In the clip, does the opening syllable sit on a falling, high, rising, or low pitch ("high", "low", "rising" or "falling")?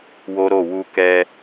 high